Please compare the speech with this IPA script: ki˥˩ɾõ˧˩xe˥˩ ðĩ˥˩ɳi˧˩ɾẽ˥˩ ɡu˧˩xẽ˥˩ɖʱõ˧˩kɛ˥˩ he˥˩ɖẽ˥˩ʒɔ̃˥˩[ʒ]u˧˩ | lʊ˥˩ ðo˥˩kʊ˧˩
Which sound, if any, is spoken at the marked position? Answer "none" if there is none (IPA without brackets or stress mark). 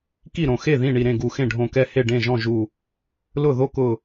ʒ